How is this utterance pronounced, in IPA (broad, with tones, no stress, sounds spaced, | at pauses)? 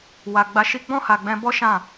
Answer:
w a˨ ɡ͡b a˧ ʃ i˦ ɡ͡b ɔ̃˦˨ h a˨ ɡ͡b ɛ̃˧ b ɔ˦ ʃ ã˦˨